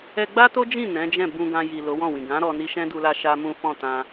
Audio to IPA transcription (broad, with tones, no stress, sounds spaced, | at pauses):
ɛ˧ ɡ͡b a˦ t o˦ d͡ʒ ĩ˦˨ n ɛ̃˨˦ d͡ʒ ɛ̃˦˨ b ũ˧ ɡ ã˧ j i˨ l o˨˦ w ɔ̃˦˨ w ĩ˨ ɡ ã˨˦ ɾ ɔ˧ n i˧ ʃ ɛ̃˦ d u˧ l a˧ ʃ a˦ m ũ˦ f ɔ̃˦˨ t ã˧